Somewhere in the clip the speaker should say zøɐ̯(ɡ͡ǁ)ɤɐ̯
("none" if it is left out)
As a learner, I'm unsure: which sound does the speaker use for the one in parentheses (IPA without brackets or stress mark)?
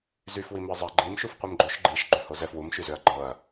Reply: ɡ͡ǃ